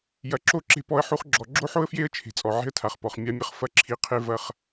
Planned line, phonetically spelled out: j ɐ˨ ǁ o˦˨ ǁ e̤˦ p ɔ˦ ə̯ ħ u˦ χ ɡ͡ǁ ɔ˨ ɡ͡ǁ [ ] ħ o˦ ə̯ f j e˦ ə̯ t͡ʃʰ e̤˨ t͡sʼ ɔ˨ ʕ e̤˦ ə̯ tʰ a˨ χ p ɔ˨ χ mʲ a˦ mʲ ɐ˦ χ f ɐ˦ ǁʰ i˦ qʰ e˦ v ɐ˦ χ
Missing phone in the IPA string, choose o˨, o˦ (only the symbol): o˦